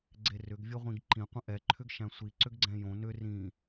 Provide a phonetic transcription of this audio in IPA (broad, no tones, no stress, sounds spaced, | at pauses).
ɡ͡ǀ e r ʏ ɡ vʲ ə ʁʷ ĩ ɡ ǃ ĩ qʷ ə̃ ʔ ɛ ǃʰ ʏ ɡ ʃ æ̃ sʷ i ǀ ʏ ɡ ɡ͡ǀ ɛ̃ j õ n ʏ r ĩ